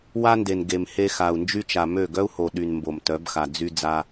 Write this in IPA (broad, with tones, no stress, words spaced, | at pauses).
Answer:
wa˦nde˨n ɡe˨m he˧xa˨u̯nd͡ʒy˦t͡ʃa˨ mø˦˨ ɡœ˦u̯ho˨ɗy˨n mbo˨mtœ˨˦bxa˨ d͡zy˧ d͡za˧